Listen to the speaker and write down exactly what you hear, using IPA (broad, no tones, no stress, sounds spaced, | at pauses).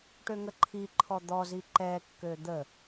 ʈ ø ŋ ə ǃʰ i ǃʰ ɔ d̪ ɔ z i ǃ ɛ kː ø d̪ ə